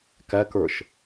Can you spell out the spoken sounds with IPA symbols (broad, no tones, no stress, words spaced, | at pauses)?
kækə˞ʃ